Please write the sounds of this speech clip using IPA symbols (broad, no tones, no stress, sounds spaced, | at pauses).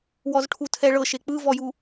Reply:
w ɔ z ʈʰ u tʰ ɛ ɭ ɤ ʃ e k͡p ɯ v ɔ j u